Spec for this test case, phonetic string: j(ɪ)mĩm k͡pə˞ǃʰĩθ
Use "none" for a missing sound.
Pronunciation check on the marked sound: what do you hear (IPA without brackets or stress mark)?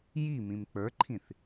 i